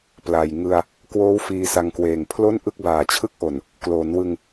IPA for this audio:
p l a˨˩ j ŋ ɯ˧ a̯ | k w oː˦˥ w f iː˧ s a˧ ŋ k w eː˨˩ ŋ pʰ l o˥˩ n ʔ ɯ˥˩ k̚ b aː˨˩ t͡ɕʰ ɯ˥˩ k̚ ʔ o˨˩ n | k l oː˩˦ n w ɯ˧ ŋ

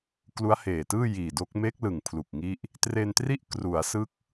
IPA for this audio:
k l u˦˥ a̯ h eː˨˩ t ɯː˥˩ j iː˨˩ d o˦˥ k̚ m e˦˥ k̚ l ɯ˨˩ ŋ pʰ l u˨˩ k̚ ŋ i˦˥ ʔ | t r e˧ n t r i˥˩ ʔ k r u˩˦ a̯ s ɯ˦˥ k̚

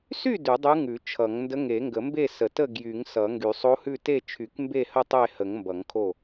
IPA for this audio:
s y˥˨ d ʉ˨˩˦ dˤ ʉ˧˥ ŋ ʉ˨˩˦ t͡ʃʰ ʌ˨˩˦ ŋ n d ə˧˥ ŋ e˨˩˦ ŋ ɡ ə˨˩˦ m b e˥˨ s ə˨˩˦ t ə˥˨ ɡ j y˨˩˦ ŋ s ʌ˨˩˦ ŋ ɡ y˨˩˦ sˤ o˧˥ h ʉ˥˨ t e˥˨ t͡ʃʰ y˨˩˦ k m b e˥˨ h ə˥˨ tˤ e˥˨ h ə˨˩˦ ŋ m b ʌ˨˩˦ ŋ kʰ o˥˨

